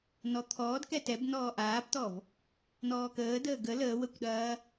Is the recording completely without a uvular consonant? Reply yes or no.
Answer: yes